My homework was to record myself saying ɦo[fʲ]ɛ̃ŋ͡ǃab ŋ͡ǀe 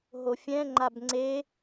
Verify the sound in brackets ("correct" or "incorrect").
correct